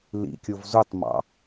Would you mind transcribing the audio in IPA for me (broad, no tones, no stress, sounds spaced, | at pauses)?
l ḭ kʲ o v z u tˤ m ɑ̰